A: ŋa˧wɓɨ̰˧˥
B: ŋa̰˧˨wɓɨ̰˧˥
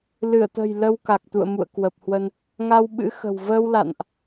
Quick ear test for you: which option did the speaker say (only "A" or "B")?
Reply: A